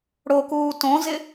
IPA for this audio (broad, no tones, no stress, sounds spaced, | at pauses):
ɽ o k uː t õ z ɪ